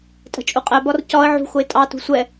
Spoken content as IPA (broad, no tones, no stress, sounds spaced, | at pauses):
tʼ ə̤ t͡ʃʼ u qʼ ɛ b ɒ r c ɒ ə̯ ʕ ṳ x ʊ ɪ̯ tʼ ɑ t ṳ sʷ ɛ